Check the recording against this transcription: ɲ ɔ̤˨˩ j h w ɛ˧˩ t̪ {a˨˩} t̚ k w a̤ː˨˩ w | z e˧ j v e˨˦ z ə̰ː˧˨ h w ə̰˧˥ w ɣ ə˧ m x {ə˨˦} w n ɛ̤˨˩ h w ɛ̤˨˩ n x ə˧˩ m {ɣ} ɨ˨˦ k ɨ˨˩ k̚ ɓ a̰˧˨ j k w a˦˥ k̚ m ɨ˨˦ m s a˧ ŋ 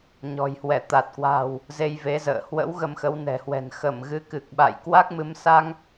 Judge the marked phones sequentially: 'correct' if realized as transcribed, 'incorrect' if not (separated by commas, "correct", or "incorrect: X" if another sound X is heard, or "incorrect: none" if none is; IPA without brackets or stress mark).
correct, correct, correct